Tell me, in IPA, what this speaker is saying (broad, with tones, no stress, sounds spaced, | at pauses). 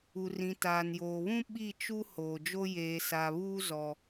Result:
u˨ r ĩ˨ t aː˨ n j oː˨ β ũ˦ ɓ i˦˨ t͡ʃ u˦ h oː˨ d͡ʒ o˦ j eː˨ s a˨ β uː˦ z ɔ˦